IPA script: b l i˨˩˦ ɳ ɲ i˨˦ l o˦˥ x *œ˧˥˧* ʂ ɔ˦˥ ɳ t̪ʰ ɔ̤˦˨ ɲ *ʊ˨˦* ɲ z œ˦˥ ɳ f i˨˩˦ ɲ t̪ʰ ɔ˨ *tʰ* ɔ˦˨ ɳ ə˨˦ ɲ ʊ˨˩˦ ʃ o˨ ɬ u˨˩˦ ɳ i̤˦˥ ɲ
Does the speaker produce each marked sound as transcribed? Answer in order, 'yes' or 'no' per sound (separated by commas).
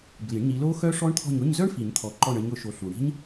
no, no, no